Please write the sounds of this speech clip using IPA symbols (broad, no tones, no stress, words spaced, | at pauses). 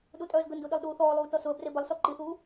ɗutʼœːzɡəndu ɗilˠɗuːθɔːlˠuː tɔsʊə̯bre bəlˠsɔ ǃiθuː